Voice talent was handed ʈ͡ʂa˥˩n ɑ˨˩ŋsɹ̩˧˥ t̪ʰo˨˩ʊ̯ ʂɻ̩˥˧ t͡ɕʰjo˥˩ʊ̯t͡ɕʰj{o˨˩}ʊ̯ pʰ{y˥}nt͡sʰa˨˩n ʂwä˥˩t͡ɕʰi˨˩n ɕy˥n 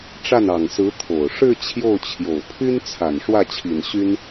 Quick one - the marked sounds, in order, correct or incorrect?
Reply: correct, correct

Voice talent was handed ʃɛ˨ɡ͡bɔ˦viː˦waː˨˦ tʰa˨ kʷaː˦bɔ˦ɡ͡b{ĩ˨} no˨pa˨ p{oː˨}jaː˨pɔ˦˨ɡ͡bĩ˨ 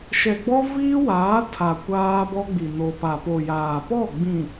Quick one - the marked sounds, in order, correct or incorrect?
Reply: incorrect: i˨, incorrect: o˨

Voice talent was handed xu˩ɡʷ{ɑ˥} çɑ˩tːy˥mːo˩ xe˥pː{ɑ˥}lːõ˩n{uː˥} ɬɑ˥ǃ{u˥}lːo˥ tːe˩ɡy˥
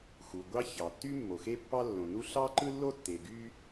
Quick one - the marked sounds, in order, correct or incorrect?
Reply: correct, correct, incorrect: u˥, incorrect: ɯ˥

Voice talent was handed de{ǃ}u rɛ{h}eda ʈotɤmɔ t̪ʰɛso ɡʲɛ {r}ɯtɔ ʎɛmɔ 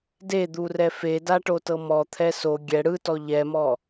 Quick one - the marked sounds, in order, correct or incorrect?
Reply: incorrect: d̪, incorrect: f, incorrect: ɽ

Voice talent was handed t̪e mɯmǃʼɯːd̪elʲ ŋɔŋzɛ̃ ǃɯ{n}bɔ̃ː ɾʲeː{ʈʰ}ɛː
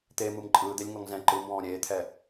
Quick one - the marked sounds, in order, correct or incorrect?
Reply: incorrect: m, incorrect: t̪ʰ

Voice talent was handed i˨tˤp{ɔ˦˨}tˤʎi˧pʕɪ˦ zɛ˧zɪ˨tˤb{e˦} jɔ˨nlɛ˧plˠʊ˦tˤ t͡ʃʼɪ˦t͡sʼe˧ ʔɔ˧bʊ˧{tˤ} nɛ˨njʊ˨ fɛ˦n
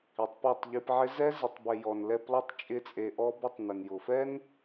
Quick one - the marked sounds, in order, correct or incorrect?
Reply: correct, incorrect: e˨, correct

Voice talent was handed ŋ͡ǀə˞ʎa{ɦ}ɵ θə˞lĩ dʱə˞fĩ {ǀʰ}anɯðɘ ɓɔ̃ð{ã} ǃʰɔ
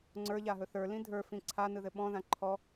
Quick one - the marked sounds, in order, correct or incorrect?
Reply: correct, correct, correct

